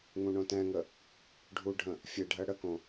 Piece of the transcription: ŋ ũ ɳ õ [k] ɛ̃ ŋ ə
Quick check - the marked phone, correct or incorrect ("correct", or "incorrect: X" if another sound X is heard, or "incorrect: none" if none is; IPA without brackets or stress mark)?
incorrect: t